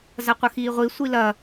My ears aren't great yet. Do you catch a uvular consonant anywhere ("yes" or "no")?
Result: yes